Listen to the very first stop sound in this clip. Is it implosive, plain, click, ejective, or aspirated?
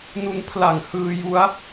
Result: aspirated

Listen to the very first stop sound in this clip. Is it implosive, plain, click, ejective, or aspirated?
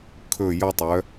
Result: aspirated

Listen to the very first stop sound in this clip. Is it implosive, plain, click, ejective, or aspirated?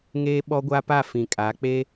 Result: implosive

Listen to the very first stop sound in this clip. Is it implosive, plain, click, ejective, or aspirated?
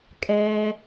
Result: ejective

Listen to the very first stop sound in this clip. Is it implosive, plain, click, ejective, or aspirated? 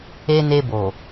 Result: plain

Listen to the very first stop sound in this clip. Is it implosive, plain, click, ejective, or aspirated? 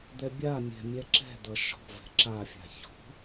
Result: plain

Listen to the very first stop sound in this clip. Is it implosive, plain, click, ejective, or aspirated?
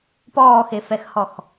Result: plain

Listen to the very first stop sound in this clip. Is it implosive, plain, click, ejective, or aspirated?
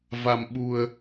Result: implosive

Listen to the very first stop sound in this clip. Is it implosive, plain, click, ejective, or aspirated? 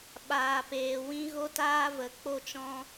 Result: implosive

